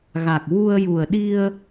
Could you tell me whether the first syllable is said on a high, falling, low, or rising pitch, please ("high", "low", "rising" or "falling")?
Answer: low